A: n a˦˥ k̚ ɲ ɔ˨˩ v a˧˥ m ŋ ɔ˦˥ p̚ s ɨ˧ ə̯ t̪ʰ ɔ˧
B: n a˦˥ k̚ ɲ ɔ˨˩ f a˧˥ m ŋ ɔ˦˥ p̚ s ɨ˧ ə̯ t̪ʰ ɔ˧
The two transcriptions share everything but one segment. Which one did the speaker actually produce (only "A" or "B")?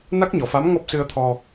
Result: B